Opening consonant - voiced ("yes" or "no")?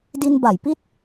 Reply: yes